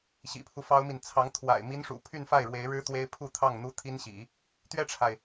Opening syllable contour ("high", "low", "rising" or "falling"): low